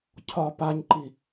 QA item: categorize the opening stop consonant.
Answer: aspirated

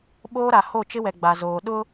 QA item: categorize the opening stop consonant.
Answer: implosive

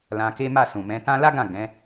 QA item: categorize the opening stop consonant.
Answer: plain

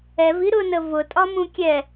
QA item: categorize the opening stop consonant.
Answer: ejective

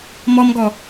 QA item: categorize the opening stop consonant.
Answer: plain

